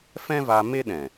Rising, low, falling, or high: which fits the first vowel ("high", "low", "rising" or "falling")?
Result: high